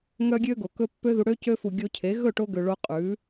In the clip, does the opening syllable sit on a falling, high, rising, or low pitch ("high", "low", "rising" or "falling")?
high